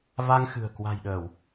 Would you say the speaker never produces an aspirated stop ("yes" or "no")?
yes